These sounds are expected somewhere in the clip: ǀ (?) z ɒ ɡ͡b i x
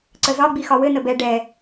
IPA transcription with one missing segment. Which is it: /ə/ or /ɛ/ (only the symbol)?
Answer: ə